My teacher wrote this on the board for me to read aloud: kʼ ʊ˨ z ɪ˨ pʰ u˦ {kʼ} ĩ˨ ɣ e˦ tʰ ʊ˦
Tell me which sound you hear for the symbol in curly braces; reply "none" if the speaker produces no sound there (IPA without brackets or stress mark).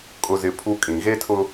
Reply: kʼ